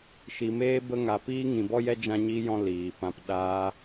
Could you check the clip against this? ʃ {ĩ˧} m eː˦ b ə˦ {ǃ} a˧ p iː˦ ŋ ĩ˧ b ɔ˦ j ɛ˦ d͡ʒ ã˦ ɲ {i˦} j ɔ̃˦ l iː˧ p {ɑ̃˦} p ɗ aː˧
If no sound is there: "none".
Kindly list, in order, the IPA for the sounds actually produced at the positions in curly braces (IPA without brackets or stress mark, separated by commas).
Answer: i˧, ŋ, i˦, ã˦